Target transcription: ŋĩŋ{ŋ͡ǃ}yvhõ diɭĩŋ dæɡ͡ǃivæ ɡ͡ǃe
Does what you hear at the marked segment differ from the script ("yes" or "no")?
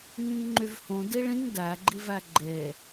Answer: no